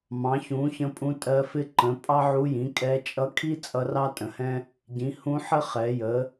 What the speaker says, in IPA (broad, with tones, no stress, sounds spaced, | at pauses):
m ɑ̃˩˥ ç ũ˩˥ ç ə̃˧˥ pʼ ũ˧˥ tʼ ɜ˧˥ f ɪ˥ ǃ ə̃˩˥ pʼ ɑ˥ ʕ u˧˥ j ĩ˩˥ kʼ ɛ˧˥ t͡ʃʼ ʌ˧˥ kʰ i˥ t͡sʼ ʌ˧˥ r ɑ˥ tʼ ə̃˩˥ h ɛ̃˥ | ɟ ĩ˩˥ h ũ˧˥ ħ ə˥ χ ɛ˩˥ j ə˩˥